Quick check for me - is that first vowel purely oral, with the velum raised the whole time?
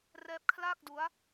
yes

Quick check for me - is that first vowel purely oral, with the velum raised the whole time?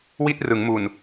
yes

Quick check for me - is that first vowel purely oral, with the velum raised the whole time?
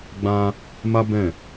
no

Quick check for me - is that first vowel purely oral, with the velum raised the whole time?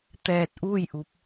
yes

